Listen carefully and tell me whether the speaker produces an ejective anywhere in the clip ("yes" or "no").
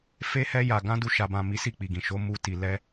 no